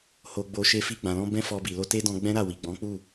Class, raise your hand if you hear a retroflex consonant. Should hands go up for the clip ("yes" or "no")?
no